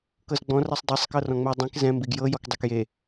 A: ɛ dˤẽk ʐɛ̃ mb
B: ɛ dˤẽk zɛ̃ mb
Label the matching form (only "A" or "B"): B